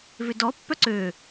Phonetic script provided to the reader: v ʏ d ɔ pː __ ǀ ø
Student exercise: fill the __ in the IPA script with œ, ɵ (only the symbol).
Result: œ